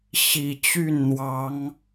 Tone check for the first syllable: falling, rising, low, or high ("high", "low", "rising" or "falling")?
low